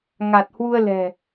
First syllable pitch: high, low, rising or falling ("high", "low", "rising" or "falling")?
low